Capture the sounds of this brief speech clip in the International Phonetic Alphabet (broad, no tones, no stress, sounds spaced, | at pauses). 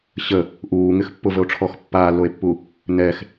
ɕ ə | ʔ uː ŋ ɪ x pː ʊ v ə o̯ ʈ͡ʂʰ ɔ x pː aː lː o e̯ pː u | n ɛ x